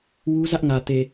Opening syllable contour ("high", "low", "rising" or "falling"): high